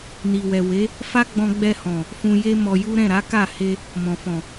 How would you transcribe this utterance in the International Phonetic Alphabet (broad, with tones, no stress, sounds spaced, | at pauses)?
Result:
n i˨ w ɛ˨ w e˨˦ | f a˦ ɡ͡b ɔ̃˧ ɡ͡b ɛ˧ h ɔ̃˨ | f ũ˧ j e˦ m ɔ˧ j u˦ ɾ ɛ̃˦˨ ɾ a˨˦ k a˦˨ h e˧ | m ɔ̃˨ f ɔ̃˨